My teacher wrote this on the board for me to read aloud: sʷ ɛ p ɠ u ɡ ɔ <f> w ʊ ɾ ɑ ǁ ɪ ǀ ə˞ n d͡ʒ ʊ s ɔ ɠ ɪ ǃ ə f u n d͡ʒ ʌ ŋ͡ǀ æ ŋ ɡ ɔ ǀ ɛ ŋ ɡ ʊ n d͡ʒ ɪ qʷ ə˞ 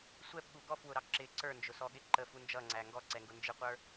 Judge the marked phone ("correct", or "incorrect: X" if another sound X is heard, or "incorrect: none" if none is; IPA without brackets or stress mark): correct